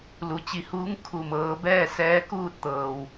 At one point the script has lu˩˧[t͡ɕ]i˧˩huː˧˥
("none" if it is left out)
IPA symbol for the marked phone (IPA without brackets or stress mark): t͡ɕ